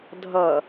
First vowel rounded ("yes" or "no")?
no